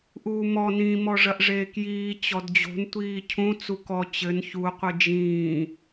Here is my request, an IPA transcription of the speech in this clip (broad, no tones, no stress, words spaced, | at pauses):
ʔuːmɔ nĩ mɔʐɐʔʐeːkjiː t͡ɕɔdd͡ʑo̤n tʷiːcʰũ t͡sukɔ t͡ɕɘn çu qʷɨd͡ʒĩː